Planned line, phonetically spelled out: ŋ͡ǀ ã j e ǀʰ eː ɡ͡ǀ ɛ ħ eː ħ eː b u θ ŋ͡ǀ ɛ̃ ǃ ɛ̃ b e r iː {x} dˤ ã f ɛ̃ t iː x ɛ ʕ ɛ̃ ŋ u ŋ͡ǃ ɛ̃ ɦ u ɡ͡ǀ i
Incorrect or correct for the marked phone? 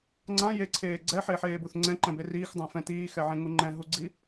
correct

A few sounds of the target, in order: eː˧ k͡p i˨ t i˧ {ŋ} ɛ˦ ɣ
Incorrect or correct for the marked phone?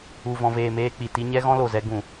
incorrect: ɲ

